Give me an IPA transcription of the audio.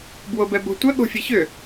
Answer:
b w o b ɛ b o̤ tʷ ə ɠ o̤ fʲ e ç ʏ

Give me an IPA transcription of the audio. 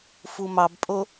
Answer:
f u m ɑ b pʼ o

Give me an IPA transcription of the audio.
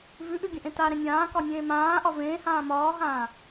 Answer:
v ʉ ʔ ʉ ɡʲ ə̃ ʔ ẽ t a ɾ ẽ nʲ ãː k ɒ nʲ ẽː m ãː ʔ ɒ v ẽː h ãː m ɒː ɦ ãː

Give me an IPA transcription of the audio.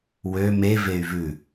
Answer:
w ø m e v e y̯ v ʉ

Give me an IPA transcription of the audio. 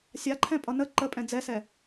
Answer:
sʲ a ǃʰ ɛ̃ pʼ ʌ n ə ǃ ə pʼ ɛ̃ d͡z ɛ s ɛ

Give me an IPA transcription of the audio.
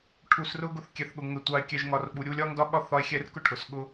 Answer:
ʈʰ u˧ s r ʊ˦ ɡ ʊ˦ θ kʲ ɛ˧ θ ɠ ʊ˧ ŋ ə˧ tʷ ɑ˧ e̯ kʲ ɛ˧ ʒ ŋ ɒ˧ r ɓ u˨ ɾʲ u˧ lʲ ɒ˦ ŋ d ɒ˦ ɠ ɒ˦ θ ɒ˦ e̯ xʲ ɛ˦ r k ʊ˦ ʈʰ ʊ˨ s ɠ ʊ˦

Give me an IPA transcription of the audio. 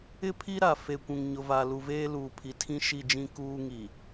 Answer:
ɪ˦ pʰ i˦ ɾ a˨ f e˨ kʷ ũ˨ ŋ ɲ ʊ˨ v a˨ l u˨ v eː˦ l uː˨ pʰ i˨ tʰ ĩ˦ ʃ i˦˨ d͡ʒ ĩ˦ k uː˦ ŋ i˨

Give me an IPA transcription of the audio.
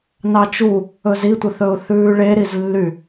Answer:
n ɑ t͡ʃ u | ɵ z i tʷ ə θ ɵ ʊ̯ θ ʉː ɭ e ɾ i z lː y

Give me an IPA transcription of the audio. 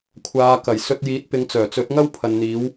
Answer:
kʷʰ aː˨˧ k ɐ˨˩ j s ɵ˧ t̚ j iː˨˥ t̚ p ɪ˨˧ ŋ t͡s œː˨˩ t͡s ɵ˨˥ t̚ ŋ ɐ˥ w pʰ ɐ˨ n n̪ iː˨˧ w

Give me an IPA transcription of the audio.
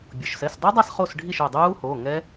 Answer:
bʲ o˩ ʃ s ɛ˩˧˩ s dˤ u˦˥ dˤ a˥˩ s χ o˥˩ s ɖʱ i˥˩ ʃ o˧˩ dˤ uː˦˥ h oː˩˧˩ ŋ ɛ˦˥

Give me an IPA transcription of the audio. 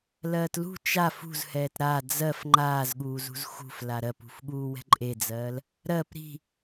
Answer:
l ɜː t l ṳ t͡ʃ a f ṳ z h ɛː t ɾ a d͡z ɜ f ŋ͡ǃ aː z ɠ uː z ṳ z x ṳ f l a ɾ ɜ p ṳ f ɠ uː w ɛ̤ ǃʼ e d͡z ɜː l | ɾ ɜ p ɾ i̤

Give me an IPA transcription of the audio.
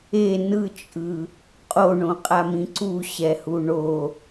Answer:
e n ɯ t͡ʃʼ ɯ | qʼ o ɳ õ qʼ a m ĩ ǀ u ɕ ɛ h u ɳ o

